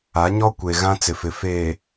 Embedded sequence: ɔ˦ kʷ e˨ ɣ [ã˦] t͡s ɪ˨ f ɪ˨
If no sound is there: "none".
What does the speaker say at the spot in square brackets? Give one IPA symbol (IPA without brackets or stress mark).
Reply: ã˦